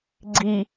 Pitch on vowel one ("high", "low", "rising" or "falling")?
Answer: low